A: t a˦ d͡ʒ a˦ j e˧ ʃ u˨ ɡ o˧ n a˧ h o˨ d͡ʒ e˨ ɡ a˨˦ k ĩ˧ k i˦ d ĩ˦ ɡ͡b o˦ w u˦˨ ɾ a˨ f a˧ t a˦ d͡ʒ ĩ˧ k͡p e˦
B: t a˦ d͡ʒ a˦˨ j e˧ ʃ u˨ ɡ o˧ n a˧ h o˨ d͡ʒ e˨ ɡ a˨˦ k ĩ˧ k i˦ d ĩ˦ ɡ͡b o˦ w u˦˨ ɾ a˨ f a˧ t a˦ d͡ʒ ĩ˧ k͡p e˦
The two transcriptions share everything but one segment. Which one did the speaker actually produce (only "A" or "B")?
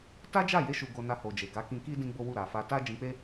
B